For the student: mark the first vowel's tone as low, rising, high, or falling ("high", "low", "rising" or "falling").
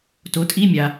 rising